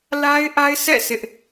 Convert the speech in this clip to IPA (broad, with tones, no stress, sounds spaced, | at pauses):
l a˦ ɪ̯ ʔ a˦ ɪ̯ sʰ ɛ̰˦˨ sʰ ɪ˦ ʔ